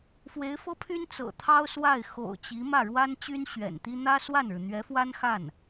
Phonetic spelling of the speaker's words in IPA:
f w e˧˥ ɪ̯ f ɤ˥ pʰ y˥ n t͡s ɤ̰˨˩ t̪ʰ ɑ˥ ʊ̯ s w a˥˩ ɪ̯ x o̰˨˩ ʊ̯ t͡ɕ i˧˥ m ä˥˩ ɻ w a˥ n t͡ɕ y˥ n ɕ ɥ ɛ̰˨˩ n t̪ i˥ n̪ ä˥ s w a˥˩ n ɻ ɻ̩˩ n̪ ɥ ɛ˧˥ f w a˥ n x a˥˩ n

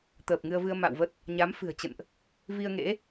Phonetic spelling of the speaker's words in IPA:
t̪ əː˨˩ p̚ ŋ ɨ˧ ə̯ v ɨ˧ ə̯ m a̰˧˨ w v ə˦˥ t̚ | ɲ a˨˦ m f ɨ̤˨˩ ə̯ t͡ɕ ə̰˧˨ n ʔ | v i˧ ə̯ ŋ ḛ˧˥

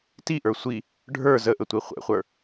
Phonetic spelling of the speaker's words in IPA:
t i ʔ ə˞ sʷ i | ɖʱ ə˞ z ə ʔ ə tʷ i χʷ ɛ̰ χʷ ə˞

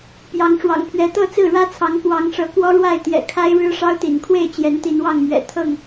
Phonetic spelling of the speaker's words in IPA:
p j ɑ˨˦ ŋ ʂ w ɑ̰˨˩ ŋ pʰ ɥ ɛ˨˦ t̪ ɤ˥˨ t͡s ɹ̩˥˨ ɻ ä˦ t͡sʰ ɑ˨˦ ŋ k w ɑ˨˦ ŋ ʂ ɤ˨˦ k w ɔ˦ ɻ w a˥˨ ɪ̯ t̪ j ɛ̰˨˩ kʰ a˦ ɪ̯ ɻ ɻ̩˦ ʂ ɑ˦ ʊ̯ t̪ ḭ˨˩ n kʰ w e˥˨ ɪ̯ t͡ɕ j ɛ˨˦ n t̪ i˨˦ n w ɑ˥˨ ŋ m ɥ ɛ̰˨˩ t̪ʰ ɤ˥˨ ŋ

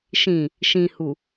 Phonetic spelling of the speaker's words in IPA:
ʃ ĩ | ʃ ĩ h u

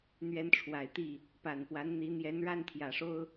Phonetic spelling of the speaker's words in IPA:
n̪ ɥ ɛ˨˦ n ʈ͡ʂʰ w a˨˩ ɪ̯ t̪ i˥˨ | p a˨˩ n p w a˨˦ n n̪ i˨˦ n̪ j ɛ˨˦ n ɻ a˥˨ n t̪ʰ j ä˨˩ ʂ o˦ ʊ̯

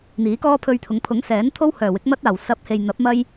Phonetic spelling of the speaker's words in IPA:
n̪ iː˨˥ k ɔː˥ pʰ ɵ˧ ɥ t̪ʰ ʊ˨˧ ŋ pʰ ʊ˨˥ ŋ s ɛː˨˥ n t̪ʰ o˥ w h œː˨˩ w ɪ˨˥ k̚ m ɐ˥ t̚ aː˨˩ w s ɐ˨˥ p̚ h e˨ j n̪ ɐ˨˥ p̚ m ɐ˥ j

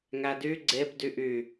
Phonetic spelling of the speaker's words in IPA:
ŋ æ d y ɡ͡ǀ e b d y ʔ y

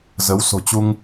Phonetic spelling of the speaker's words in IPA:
z ə˨˦ w s o̤˨˩ t͡ɕ u˧ ŋ

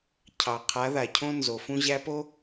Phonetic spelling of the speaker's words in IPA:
cʰ ɑ˨ qʰ a˨˦ ð a˨ cʰ õ˦ n z o˨ f ũ˦ ʑ æ˦ p o˦

